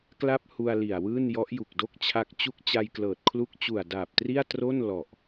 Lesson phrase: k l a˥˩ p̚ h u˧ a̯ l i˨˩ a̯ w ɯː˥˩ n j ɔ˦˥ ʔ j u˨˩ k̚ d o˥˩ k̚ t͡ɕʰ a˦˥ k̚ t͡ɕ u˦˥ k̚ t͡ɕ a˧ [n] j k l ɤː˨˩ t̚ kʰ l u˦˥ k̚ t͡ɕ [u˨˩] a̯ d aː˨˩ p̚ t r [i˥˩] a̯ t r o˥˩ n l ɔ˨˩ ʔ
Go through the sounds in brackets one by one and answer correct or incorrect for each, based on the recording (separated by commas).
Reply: incorrect, correct, correct